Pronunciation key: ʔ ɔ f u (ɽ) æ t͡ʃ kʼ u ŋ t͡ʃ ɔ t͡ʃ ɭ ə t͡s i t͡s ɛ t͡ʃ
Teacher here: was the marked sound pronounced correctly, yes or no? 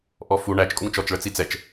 no